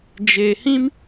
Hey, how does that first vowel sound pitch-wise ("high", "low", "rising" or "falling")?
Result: low